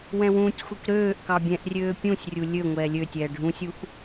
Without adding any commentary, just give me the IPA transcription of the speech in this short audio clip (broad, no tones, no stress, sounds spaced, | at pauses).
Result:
w ɛ̃ w ũː tʲ xʷ i k ɾ øː ʔ k ɑ bʲ ɛ̃ ʔ rʲ øː pʲ ũ sʲ rʲ u lʲ ø ŋʷ ɛː lʲ ø tʲ ɛː ɖʱ ũ sʲ u ʔ